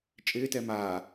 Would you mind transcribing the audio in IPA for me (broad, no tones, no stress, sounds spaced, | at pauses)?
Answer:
t͡ʃʼ ɪː t ɛ m aː